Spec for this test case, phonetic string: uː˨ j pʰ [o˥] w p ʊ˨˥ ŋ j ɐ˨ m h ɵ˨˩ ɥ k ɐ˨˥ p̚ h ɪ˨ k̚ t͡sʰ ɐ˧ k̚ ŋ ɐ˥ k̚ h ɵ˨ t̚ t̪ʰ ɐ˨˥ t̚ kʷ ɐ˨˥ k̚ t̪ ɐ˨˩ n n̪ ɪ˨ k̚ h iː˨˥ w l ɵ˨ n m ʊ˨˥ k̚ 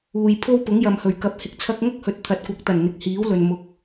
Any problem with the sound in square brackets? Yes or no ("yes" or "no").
no